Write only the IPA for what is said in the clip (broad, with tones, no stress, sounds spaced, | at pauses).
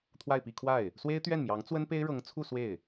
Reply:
t̪ʰ w a˥˧ ɪ̯ p i˥˧ kʰ w a˥˩ ɪ̯ | s w e˥ ɪ̯ t̪ ɥ ɛ˥˩ n m j ɑ˧˥ ŋ t͡s w ə˥ n p e˥ ɪ̯ ɻ ɤ˧˥ ŋ t͡sʰ u˥˧ s w e˥˩ ɪ̯